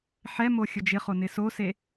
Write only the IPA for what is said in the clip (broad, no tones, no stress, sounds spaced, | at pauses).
ħ ɛ m o xʲ ʊ d͡ʒ ɪ χ o n ɪ s o s e